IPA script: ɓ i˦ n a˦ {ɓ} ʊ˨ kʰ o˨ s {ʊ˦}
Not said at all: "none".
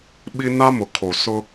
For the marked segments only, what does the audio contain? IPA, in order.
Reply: m, ʊ˦

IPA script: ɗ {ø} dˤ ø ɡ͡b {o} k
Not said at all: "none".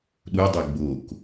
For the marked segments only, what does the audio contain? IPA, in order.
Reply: u, o

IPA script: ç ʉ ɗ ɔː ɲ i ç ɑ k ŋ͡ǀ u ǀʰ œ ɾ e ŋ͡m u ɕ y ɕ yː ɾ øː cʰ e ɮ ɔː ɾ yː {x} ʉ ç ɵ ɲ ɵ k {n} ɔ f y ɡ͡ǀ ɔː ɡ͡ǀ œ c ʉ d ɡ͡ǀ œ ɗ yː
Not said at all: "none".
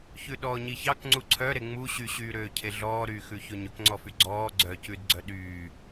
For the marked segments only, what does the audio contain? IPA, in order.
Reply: x, ŋ͡ǀ

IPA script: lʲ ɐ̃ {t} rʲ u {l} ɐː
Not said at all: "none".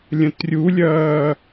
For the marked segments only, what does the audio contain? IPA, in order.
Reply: t, lʲ

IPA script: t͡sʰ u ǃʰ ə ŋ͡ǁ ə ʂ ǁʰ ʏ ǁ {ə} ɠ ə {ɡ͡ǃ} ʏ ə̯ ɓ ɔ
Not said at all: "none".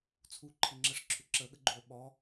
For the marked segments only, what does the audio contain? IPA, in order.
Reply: ə, ɡ͡ǃ

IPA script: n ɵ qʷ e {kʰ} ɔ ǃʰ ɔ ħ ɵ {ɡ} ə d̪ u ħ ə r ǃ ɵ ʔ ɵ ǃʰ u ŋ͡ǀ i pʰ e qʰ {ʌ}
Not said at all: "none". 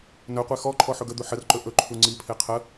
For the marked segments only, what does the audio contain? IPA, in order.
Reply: x, ɡ, ə

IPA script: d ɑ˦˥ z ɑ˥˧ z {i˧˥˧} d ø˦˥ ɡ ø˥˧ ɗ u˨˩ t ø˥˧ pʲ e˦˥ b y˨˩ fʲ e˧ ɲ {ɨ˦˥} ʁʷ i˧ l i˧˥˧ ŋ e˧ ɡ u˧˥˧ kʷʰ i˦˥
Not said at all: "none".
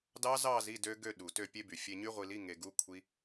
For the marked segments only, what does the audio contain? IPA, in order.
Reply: i˧˥˧, y˦˥

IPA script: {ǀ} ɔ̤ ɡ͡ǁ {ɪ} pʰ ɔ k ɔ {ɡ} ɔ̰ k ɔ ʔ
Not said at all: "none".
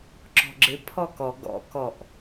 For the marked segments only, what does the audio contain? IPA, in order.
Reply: ǁ, ɪ, ɡ

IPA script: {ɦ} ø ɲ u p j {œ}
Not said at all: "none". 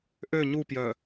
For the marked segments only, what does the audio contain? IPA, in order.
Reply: ʔ, œ

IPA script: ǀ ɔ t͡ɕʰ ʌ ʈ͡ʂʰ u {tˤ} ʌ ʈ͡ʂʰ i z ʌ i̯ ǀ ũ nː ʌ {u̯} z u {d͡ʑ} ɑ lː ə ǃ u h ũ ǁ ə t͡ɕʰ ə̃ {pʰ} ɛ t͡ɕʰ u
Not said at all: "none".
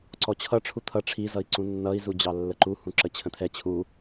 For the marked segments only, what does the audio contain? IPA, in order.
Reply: t̪ʰ, i̯, d͡ʑ, t̪ʰ

